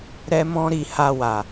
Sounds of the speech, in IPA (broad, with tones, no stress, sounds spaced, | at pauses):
ɾ ɛ˦ m ɔ̃˦ ɾ i˧ h a˧ w a˨